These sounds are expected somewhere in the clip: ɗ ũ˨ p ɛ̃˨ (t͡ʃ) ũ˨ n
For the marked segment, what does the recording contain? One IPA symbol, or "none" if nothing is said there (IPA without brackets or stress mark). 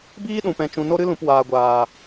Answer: t͡ʃ